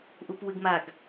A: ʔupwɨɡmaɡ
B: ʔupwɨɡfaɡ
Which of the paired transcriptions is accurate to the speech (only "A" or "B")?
A